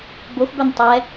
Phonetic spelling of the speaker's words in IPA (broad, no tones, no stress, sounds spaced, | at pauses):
b o x b œ n tˤ ɛ